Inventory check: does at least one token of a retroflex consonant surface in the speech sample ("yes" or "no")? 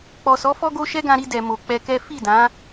no